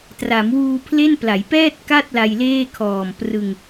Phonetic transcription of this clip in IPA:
t r a˩˦ m w uː˧ pʰ l e˥˩ n p l a˩˦ j p ɛː˥˩ t̚ k a˥˩ t̚ l a˧ j l eː˥˩ kʰ ɔː˨˩ m p r ɯ˧ ŋ

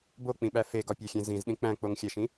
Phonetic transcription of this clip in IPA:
b o k͡p ĩ ɓ æ f e ɡ ɒ pʲ æ xʲ ẽ z ĩ z ɗ ĩ k͡p æ̃ k͡p o ŋ xʲ æ ʃ ĩ

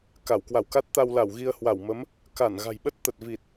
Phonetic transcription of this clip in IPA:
k a˧˩ w k w a˧˩ w k a˦˥ t̚ t̪ a˧ w l a˧˩ w ɣ i˧ ə̯ h w a˧˩ w m ə˨˦ m | k a˧˩ n ɣ a̤˨˩ j ɓ ə˦˥ t̚ t̪ ə˨˩ t̚ v i˨˩ t̚

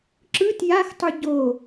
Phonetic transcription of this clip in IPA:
ǁ ɯ t j a x tˤ ɯ ɟ o

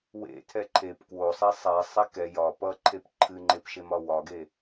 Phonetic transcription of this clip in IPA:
w ḛ tʰ ɛ ǃʰ e p k w o sˤ ɛ sˤ ɛ sˤ e k ɛ j ɒ p ʌ ǃʰ e p ǃʰ ɨ ŋ͡ǃ e p ʃ e m ɒ w ɒ ɡ e

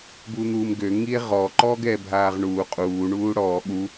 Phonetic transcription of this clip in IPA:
b u n̪ uː m ɡ ø ŋ i e̯ ʁ ɔ ǃ ɔː ɡ ɛː bʱ aː ʁ ɳ uː qʼ uː ɳ uː ɽ ɔː ɠ u

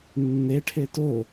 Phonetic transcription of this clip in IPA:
nː e ʈʰ e t o

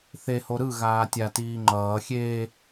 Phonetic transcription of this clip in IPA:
θ e h o ɾ ɯ ɣ aː tʲ a t iː ŋ͡ǃ ʌː xʲ eː

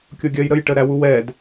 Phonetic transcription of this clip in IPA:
kʲ o ɡʲ ɜ j ɾ ə j ʈ ə ɾ æ w u w ɛ d

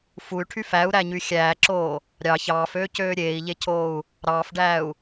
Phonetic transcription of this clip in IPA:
f u y̯ ʈʰ y f æ u̯ ɾ æ ɲ y xʲ æː ǁ oː | ɾʲ ɑ ç ɑː f øː c øː ɾʲ eː i̯ ʎ e cʰ oː u̯ | ɾ ɑː f ɖ æː u̯

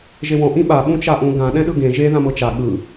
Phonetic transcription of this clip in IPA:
ʒ e w ɔ̃ ʔ ĩ ɓ a ɓ ũ t͡ʃ a ʔ ũ ɡ ã ɗ ɛ̃ ɗ ɯ ɡ ẽ ʒ e ð ã m ɤ t͡ʃ a ɠ ɯ

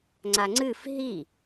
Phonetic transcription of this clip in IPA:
ŋ͡ǀ a ŋ͡ǀ ɨ f ɦ i

